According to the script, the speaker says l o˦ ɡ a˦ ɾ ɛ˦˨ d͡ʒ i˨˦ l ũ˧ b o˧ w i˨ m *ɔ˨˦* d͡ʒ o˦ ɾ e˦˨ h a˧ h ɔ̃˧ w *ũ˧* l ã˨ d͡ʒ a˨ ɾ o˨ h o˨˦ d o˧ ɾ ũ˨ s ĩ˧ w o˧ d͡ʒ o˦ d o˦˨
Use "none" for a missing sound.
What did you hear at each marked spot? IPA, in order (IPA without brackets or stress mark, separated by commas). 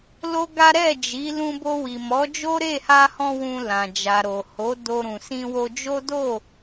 ɔ˨˦, ũ˧